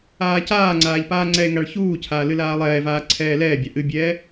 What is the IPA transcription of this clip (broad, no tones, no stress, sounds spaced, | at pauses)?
aː c aː ŋ͡ǀ aː ʎ p aː ŋ͡ǀ ɛ e̯ ŋ a ɭ ç uː cʰ aː l ɨ l aː lˠ ɛː v aː ǀʰ ɛː l ɛː bʲ a ʔ ɨ bʲ ɛː